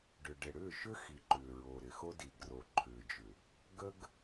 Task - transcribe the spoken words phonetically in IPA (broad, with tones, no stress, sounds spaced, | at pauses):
ɖ ʏ˨ ɖ ɪ˨ ɽ ʏː˦˨ ʃ ʏ˦ x i˨ ǃ ʏː˨ ɹ o˨ ɾ ɪ˨ x o˦ d i˨ ɡ r o˨ ǃʰ ʏː˨ d͡ʒ ʏ˨ | ɡ ə˦ ɡ